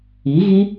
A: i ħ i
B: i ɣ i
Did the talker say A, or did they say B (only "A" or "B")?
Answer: B